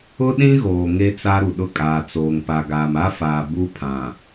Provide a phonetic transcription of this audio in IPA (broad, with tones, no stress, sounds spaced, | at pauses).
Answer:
ʊ˦ ɗ ĩ˦ ɣ oː˨ ŋ e˦ t͡s a˦ ɾ u˨ ɗ ʊ˦ kʼ aː˨ t͡s oː˨ ŋ p a˨ ɡ aː˨ m a˦ f aː˨ b u˦ pʰ ã˨